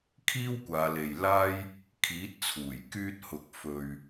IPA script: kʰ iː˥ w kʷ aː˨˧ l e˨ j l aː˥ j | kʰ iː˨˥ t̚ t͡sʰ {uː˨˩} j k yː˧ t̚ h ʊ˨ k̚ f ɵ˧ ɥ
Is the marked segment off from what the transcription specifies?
no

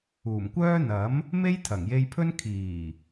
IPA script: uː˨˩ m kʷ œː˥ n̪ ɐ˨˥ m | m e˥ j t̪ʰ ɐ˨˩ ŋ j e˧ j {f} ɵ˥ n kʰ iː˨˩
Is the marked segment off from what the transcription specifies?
yes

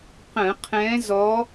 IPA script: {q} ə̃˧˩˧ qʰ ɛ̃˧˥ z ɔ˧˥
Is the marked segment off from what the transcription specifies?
no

